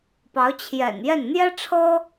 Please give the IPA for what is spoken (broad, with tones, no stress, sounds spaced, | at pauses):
p ɑ˧˥ ʊ̯ t͡ɕʰ j ɛ̰˨˩ n j ɛ˥˩ n n̪ j ɛ˥ ʈ͡ʂʰ ɤ˥